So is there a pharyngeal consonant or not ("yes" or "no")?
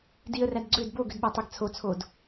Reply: no